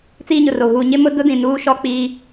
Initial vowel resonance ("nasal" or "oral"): oral